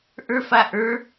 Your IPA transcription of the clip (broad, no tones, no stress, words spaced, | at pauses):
ʔə˞fa ʔə˞